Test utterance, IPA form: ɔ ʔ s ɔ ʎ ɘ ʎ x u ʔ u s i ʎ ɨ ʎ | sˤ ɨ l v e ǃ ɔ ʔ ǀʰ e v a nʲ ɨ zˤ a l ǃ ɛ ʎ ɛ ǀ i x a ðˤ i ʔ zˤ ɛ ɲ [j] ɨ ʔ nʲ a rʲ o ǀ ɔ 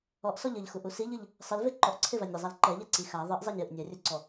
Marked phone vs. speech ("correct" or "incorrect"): correct